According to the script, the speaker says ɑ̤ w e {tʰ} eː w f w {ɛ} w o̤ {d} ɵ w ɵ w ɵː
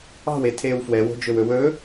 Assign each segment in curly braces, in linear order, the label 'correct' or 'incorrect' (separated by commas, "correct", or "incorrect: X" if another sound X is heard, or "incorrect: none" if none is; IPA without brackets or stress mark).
correct, correct, incorrect: d͡ʒ